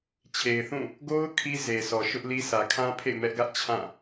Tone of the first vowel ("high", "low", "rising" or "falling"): low